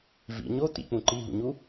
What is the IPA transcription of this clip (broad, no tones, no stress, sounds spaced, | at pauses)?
v ḭ ɲ o t̪ ḭ k͡p ũ ǃ i ɦ ṵ ɲ u